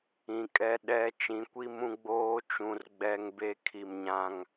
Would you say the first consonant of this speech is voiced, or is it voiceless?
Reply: voiceless